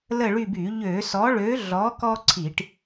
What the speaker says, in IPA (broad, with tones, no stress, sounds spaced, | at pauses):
l ə˦˨ ɭ y˦˨ b y˧˩˧ ʎ ø˧˩˧ s ɔ˨˥ ɭ ø˨˥ ɮ ɔ˨˥ k ɔ˦ ǀʰ i˧˩˧ ʈ